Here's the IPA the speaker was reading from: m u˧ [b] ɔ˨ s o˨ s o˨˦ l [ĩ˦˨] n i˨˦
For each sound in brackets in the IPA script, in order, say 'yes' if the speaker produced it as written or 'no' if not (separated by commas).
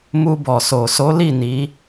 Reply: yes, no